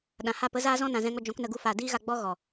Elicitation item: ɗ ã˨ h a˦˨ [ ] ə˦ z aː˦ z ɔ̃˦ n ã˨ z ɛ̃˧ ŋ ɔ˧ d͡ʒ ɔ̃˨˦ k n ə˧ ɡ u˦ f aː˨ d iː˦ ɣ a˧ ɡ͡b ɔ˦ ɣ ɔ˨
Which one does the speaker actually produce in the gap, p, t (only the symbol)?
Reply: p